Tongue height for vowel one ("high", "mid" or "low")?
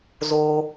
mid